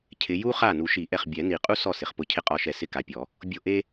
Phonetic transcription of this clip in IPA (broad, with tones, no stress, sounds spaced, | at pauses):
cʰ ɪ˨˦ j u˥ χ a˥˩ n u˨˩˦ ʃ i˨˩˦ ʔ ɛ˧˩ χ bʲ ɛ˨˩˦ n i˨˩˦ qʼ u˥ s ɔ˥˩ s ɪ˧˩ χ p ʊ˥˩ cʰ ɪ˥ qʼ ɔ˧˩ ʃ ɛ˧˩ s ɪ˥˩ k a˨˦ pʲ ɔ˨˩˦ | bʲ o˥˩ ʔ e˥